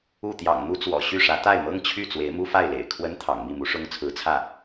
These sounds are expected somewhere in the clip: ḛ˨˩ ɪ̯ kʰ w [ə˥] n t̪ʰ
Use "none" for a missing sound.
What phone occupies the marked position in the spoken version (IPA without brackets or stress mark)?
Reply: ə˥